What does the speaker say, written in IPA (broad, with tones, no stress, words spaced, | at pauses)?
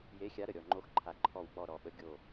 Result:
je˨˦xʲa˨˦ ɾə˨˩ɾʲɔ˨˩ŋ͡ǃo˨˦xǃʰa˨˩ ǃʰɔ˨˩wk͡pɔ˨˩ ɾɔ˨˩ɓə˨˦ ɡʲo˨˩